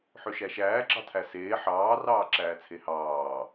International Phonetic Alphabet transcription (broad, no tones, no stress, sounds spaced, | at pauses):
ħ ø ʃ æ ʃ æː ɡ͡ǁ ɑ tʰ æ s eː ħ ɑː r ɑː ǁ æː t͡sʰ e h ɑː